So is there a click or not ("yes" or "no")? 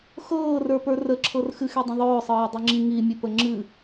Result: yes